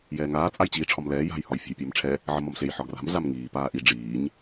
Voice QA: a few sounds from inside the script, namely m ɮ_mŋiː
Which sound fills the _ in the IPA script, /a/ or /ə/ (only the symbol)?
a